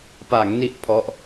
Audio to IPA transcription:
p a˩˦ ŋ n i˥˩ ʔ pʰ ɔ˦˥ ʔ

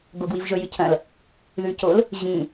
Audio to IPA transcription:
ɡ o ɡ w i v ʒ ɵ j ɨ cʰ ɐ̃ l | ð ʉ c o l | ʑ ĩ

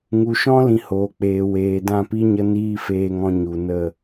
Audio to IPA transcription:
ŋ u˨ ʃ ɔ̃˦ l ĩ˧ h oː˨ k͡p eː˨ w eː˨ d ã˦˨ p i˦ ɲ ə˦ n iː˦ f eː˧ ŋ ɔ̃˧ ɲ u˨ n ə˦˨

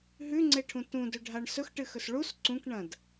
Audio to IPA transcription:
ɦ ʉ ŋ͡ǀ e ʈʰ ũ t ũ d ɵ ɖʱ a ɳ s ɵ x ʈ ɨ x ɵ s ɭ u s ǀ ũ k ɳ ɐ̃ d

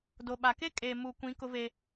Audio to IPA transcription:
d o˨ ɓ a˨ k e˦ kʼ eː˨ m uː˨ kʷ ĩ˨˦ k ʊ˦ v e˦

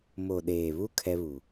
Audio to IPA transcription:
m o˨ ɗ eː˨ β u˦ kʰ ɛ˦ β u˨

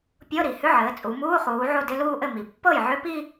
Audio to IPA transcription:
pʲ ɤ˧˥˧ ɾ i˩ h ʏ˧˥˧ ʕ ɘː˩˧ t͡sʼ u˩˧ m uː˧˥˧ χ uː˩˧ ʕ o˥˩ d ɪ˧˥˧ l uː˥˧ ʔ ɘ˥˩ m i˩ pː ɤ˥˩ j ʕ ʏ˧˥˧ p i˥˧

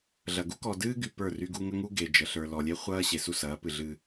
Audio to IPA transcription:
ɮ ɐ˨ ɡ u˦ k ɔ˨ d ɨː˦ ɡ y˨ p ə˞˦˨ r y˦ ɡ u˦ ŋ ə˦ ŋ u˦ ɡ e˨ d͡ʒ ə˨ ɬ ə˞˨ l ɔ˨ lʲ e˦ χʷ ɐː˦ ɕ e˨ s u˦˨ s ɐː˨˦ p ɨ˨ ɮ ɨ˦

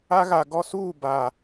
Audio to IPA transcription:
a˦ ɣ a˨ ɡ ɔ˦ s uː˦˨ b a˨

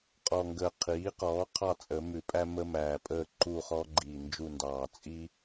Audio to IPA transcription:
qʼ ɔ˨˩ ŋ ɡ əː˨˩ qʰ iː˩˥ q ɔː˩˥ qʰ ɑ˦˨ t͡sʼ ə˨˩˦ m ʉ˨˩˦ pʼ æ˦ m ə˦ m æː˨˩ pʼ əː˦˨ ǃ u˦˨ χ ɔː˦ ɡ͡ǃ iː˨˩ n d͡ʒ u˦˨ n d ɑː˨˩ t͡sʼ i˦

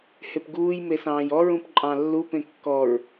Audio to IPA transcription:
h e p ɡ uː j m e s ɑ̃ː j ɔ ɹ ũ p ǃʼ ɑ̃ lː u p ẽ kː ɔ ɹ

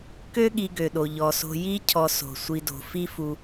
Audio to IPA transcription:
k ø˦ ɠ i˨ ɡ ø˩ ɗ o˩ ʎ ɔ˩ s o̤˨ j i˦ cʰ ɔ˨ s o̤˩ sʷ i˨ d o̤˩ f i˥ f u˨

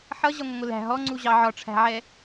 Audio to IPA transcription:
ħ ʌ ʑ ʌ ŋʷ ə ŋʷ ɪ l æ̤ ɦ ɔ ŋ͡ǀ u ʑ ɑ ʕ ɒ ʈ͡ʂʰ æ̤ ʕ ɛ

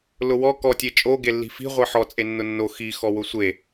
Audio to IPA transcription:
l ʊ w ɔ k ɔ tʲ e t͡ʃʼ o ɡ e lː i̤ f i̤ ʁʷ e ħ ɔ t͡sʼ e nː ʊ nː o x i x ɔ w ʊ sʷ e

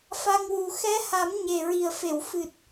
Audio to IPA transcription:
f a˧ ŋ w u˨˩ x ɛ˧˥ h a˨˩˦ m ɲ e˨˩ ɹ i˨˩ ə̯ f e˨˩˨ w f ɨ˨˩ t̚

